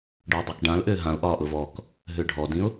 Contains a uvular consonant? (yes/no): no